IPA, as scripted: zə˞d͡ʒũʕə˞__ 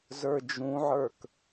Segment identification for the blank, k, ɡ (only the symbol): k